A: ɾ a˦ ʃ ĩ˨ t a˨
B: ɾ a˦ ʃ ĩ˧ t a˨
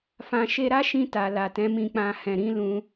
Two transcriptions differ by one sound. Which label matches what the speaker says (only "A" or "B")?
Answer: B